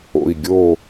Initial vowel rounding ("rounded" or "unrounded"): rounded